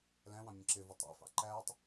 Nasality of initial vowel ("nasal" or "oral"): nasal